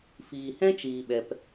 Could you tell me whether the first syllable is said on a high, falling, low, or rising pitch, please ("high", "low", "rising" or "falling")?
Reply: low